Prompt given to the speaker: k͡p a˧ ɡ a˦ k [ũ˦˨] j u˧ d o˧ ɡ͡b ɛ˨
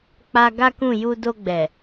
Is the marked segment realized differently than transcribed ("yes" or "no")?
no